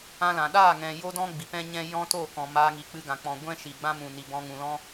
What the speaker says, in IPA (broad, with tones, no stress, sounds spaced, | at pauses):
ã˦ l ã˨ ɗ aː˦˨ ŋ ɛ̃˨ j o˦ d ɔ̃˦ ɡ͡b i˨ p ɛ̃˦ ɲ ɛ̃˦ j ɔ̃˦ t o˦˨ k ɔ̃˨ m aː˧ ŋ i˨ k͡p ɨ˧ ɡ ã˨ k͡p ɔ̃˨ ɡʷ ɛ̃˦ ʃ i˨ ɡ͡b ã˦ m ũ˨ n i˨ b ɔ̃˧ ŋ ũ˨ l ɔ̃˦